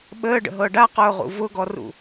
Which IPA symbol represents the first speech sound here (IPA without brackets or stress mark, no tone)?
ɓ